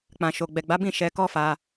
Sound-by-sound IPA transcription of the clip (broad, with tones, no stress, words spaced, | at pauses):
k͡pã˨ʃo˨ ɡ͡bɛ˨ɡ͡ba˨˦bĩ˦˨ ʃɛ˧kɔ˦fa˧